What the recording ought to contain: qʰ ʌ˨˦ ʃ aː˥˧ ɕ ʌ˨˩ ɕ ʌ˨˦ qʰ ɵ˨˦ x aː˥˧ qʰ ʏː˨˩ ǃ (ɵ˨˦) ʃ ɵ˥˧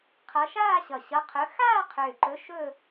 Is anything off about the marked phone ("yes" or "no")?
no